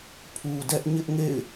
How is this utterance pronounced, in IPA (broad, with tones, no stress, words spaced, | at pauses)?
pʰu˨dɛ˦ʔ ɲɪ˦ʔŋḛ˦˨ɪ̯